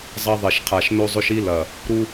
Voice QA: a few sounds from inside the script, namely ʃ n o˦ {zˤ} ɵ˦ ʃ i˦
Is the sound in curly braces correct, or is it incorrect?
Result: correct